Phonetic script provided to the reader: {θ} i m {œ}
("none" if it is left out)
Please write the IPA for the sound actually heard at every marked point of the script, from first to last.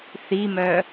θ, œ

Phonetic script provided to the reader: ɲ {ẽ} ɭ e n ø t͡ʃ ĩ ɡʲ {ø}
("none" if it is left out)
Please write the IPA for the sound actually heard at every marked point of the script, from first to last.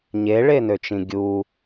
e, u

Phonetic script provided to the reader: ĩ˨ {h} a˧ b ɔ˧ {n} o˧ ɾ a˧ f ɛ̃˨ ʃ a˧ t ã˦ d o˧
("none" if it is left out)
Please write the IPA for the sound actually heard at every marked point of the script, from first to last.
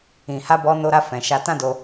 h, n

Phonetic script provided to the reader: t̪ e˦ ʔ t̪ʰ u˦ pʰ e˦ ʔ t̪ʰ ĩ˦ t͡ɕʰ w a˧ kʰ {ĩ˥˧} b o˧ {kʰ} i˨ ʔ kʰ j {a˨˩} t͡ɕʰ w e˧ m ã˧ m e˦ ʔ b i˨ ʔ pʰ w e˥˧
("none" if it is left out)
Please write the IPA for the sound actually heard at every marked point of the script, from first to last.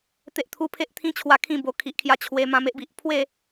ĩ˥˧, kʰ, a˧

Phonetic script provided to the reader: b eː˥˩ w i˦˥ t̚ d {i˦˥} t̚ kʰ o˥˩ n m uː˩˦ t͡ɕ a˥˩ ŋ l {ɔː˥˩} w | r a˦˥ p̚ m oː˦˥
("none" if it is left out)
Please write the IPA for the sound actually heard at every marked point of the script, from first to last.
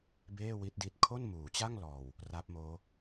i˦˥, ɔː˨˩

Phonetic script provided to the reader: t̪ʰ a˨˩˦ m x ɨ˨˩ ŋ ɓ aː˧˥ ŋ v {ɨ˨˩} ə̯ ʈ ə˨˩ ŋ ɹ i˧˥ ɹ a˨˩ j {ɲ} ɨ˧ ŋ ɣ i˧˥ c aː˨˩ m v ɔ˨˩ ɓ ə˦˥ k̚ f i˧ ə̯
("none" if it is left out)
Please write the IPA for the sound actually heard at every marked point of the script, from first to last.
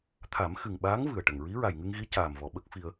ɨ˨˩, ŋ

